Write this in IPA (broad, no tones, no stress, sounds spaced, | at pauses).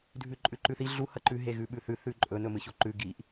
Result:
dʱ ʉ ǃʼ ʉ ǃ ʉ θ i ɮ u h ɐ ǃ ʉ ɦ e ɣ ʉ ɓ ʉ θ ʉ θ ʉ ǃʼ ɵ n ɵ m ɨ ç o ǃ ʉ ɡ i ʔ